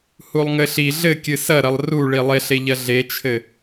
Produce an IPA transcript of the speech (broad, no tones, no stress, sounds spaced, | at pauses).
h u lˠ ŋ ɘ ɬ i ɮ ɘ kʲ ɨ s ɐ ɾ ɐ lˠ r u ɭ i lˠ e ɬ e ʎ ɐ ɮ e t͡ʃʰ ɘ